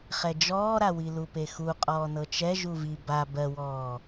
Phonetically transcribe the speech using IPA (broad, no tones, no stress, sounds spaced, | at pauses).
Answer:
χ ɛ d͡ʒ ɔː ɾ a w i l u p e x u qʼ ɔː n ɤ t͡ʃ ɛ ʒ u v i b a b ɜ w ɔː